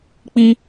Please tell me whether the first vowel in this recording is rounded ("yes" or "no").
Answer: no